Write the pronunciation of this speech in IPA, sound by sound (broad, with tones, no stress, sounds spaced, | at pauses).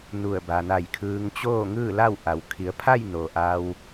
n u˧˩ ə̯ b a˩ n a˧˩ j kʰ ɯː˧ ŋ t͡ɕ oː˥˨ ŋ ɯː˥˨ l a˥˨ w ʔ a˩˧ w kʰ i˩˧ ə̯ pʰ a˥˨ j n oː˩ ʔ a˧ w